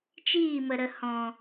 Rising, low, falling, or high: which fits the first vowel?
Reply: falling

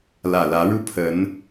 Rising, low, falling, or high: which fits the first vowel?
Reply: low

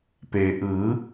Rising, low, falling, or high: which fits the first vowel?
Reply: low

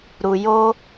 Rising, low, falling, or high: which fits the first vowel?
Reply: low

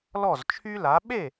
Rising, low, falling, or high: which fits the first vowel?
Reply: falling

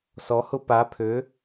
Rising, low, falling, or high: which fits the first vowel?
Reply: rising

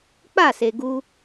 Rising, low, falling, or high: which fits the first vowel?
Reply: falling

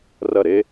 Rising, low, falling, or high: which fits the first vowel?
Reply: falling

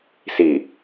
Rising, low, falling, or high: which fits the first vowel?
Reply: low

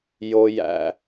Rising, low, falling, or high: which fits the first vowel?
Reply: low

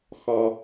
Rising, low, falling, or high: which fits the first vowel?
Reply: low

